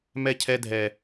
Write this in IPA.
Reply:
m ɛ˦ cʰ ɛ˦ dʱ ɛ˦

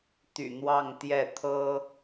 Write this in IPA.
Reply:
t̪ y̰˨˩ n̪ w ɑ˥˧ ŋ t̪ j ɛ˥˩ t̪ʰ ɤ˥

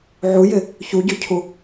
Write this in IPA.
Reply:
ʕ u j ɪ | ç u ɟ ø cʰ u

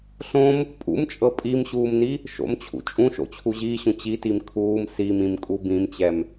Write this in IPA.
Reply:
ɬ õ m | pʼ ṵ m t͡ʃʼ ɤ pʼ i m ɕ uː m n i | ʃ o̰ m t͡ɕʰ ṵ t͡ʃʼ ũ ʃ o̰ t͡ɕʰ u ʑ iː ɕ ũ t͡ɕ i t i m kʰ uː m s i m ĩ m kʼ u b ĩ m t͡ɕ ɛ m

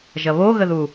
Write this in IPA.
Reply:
ʒ ɐ β o ɣ ə ð u

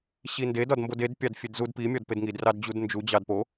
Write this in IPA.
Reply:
ɕ i n d e d ɒ d m b o d e d pʲ ɑ d fʲ e d z u d p i mʲ ɒ d p e d ŋ i d r ɑ d d͡ʑ u d n d͡ʒ u d͡ʑ ɑ d p o

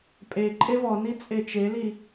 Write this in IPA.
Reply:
pʼ e ǃʼ e v ɔ n i t͡sʼ e t͡ʃ e l i

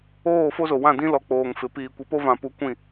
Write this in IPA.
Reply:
oː˦˨ f o˦ z o˨ w ã˦˨ d ĩ˦ l ɔ˨ k͡p oː˨ ŋ f ɪ˨ p iː˨ kʷ i˨ p o˦ v ã˨ p u˨˦ kʷ ĩ˦˨

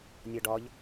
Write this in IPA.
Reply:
nʲ ɔ ɖ ɒ ʎ

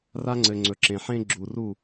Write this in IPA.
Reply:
r a˦ ŋ͡ǀ ɘ˨ ŋ͡ǀ ɵ˨ ǁ ẽ˨ ħ ẽ˦ ɡ͡ǁ u˨ r u˦˨

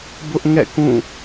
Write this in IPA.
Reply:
b ʊ˦ ʔ ŋ ɛ̰˦˨ k ũ˦˨

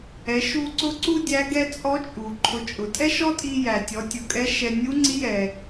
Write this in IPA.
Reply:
ɛ˩˧ ʃ u˧ ǀ ʊ˧˥ ǀ u˥ dʲ æ˧˥ ɡ ɛ˧ t͡sʼ ɔ˧˥ t͡ʃʼ u˩ ǃʰ ʊ˩˧ t͡ʃʼ ʊ˩ tʼ ɛ˥ ʃ ɔ˥ tʼ i˧ j æ˩ tʲ ɔ˩˧ tʲ ʊ˩ kʼ ɛ˧˥ ʃ ɛ˧ nʲ u˧˥ ŋ͡ǀ i˧˥ j ɛ˩

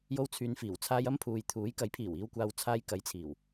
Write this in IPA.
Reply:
j o˧ w t͡sʰ yː˨ n f iː˨˩ w t͡sʰ aː˧ j ɐ˥ m pʰ uː˨ j t̪ʰ uː˨˥ j k ɐ˨˥ j pʰ iː˨˩ w iː˨ w kʷ aː˨ w t͡sʰ aː˧ j k ɐ˨˥ j t͡sʰ iː˨˩ w

